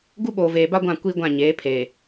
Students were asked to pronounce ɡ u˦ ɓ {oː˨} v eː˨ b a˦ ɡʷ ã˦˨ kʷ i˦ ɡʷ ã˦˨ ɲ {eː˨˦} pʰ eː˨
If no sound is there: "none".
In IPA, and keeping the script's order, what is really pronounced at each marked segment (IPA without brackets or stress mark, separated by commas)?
oː˨, eː˨˦